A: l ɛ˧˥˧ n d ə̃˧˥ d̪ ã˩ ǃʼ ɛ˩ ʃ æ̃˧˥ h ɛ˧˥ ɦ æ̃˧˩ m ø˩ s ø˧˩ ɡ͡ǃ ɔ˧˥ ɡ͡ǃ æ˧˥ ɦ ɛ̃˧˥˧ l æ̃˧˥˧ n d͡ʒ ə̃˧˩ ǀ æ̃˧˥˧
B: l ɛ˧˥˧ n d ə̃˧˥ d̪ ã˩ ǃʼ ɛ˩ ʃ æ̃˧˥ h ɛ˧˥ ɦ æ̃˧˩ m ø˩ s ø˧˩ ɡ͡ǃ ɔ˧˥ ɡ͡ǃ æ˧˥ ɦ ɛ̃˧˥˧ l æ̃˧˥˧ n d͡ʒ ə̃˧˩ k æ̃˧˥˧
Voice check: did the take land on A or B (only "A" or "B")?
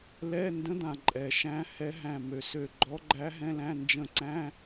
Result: A